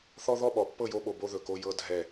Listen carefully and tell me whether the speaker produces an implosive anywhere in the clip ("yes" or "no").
yes